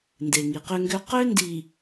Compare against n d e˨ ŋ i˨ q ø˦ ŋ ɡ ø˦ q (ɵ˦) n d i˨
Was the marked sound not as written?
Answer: yes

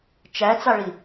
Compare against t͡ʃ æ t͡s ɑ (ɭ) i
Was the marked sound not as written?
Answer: no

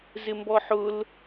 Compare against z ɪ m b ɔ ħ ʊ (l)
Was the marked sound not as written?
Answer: no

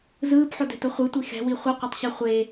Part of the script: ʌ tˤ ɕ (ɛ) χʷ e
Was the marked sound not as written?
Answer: no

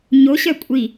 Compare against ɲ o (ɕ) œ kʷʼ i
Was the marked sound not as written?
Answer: no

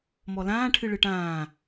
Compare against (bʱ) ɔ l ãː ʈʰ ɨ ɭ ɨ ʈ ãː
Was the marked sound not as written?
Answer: yes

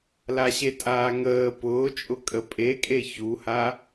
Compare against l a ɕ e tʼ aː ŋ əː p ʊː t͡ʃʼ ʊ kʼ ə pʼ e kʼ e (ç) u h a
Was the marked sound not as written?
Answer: no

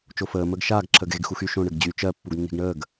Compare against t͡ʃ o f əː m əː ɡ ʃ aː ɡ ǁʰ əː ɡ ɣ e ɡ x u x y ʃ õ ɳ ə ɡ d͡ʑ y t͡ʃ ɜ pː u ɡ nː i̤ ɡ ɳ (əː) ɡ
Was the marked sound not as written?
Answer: no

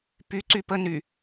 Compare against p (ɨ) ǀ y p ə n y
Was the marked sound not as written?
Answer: yes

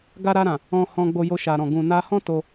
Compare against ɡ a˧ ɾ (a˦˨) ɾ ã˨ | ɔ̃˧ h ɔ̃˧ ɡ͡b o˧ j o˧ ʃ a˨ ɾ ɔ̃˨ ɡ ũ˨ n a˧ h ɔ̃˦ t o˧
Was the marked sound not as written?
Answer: yes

